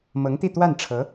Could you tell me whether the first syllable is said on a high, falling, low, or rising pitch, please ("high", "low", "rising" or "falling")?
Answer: rising